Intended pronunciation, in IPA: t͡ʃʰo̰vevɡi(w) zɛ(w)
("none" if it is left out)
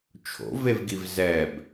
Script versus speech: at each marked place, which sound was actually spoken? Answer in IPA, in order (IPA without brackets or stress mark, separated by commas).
v, b